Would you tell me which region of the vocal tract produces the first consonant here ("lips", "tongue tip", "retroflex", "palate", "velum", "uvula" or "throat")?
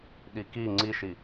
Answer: tongue tip